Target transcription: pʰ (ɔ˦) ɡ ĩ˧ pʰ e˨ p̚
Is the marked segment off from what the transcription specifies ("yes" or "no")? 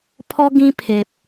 no